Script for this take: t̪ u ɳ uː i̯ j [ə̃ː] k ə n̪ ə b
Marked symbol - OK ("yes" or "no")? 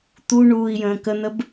yes